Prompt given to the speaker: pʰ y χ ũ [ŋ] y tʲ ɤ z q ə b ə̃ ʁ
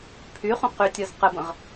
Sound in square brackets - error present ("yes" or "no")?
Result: yes